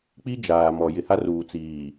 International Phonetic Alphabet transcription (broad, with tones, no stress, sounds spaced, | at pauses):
k͡p i˦ d͡ʒ aː˨ m ɔ˨ j ɪ˨ h a˦ r uː˨ t͡s iː˨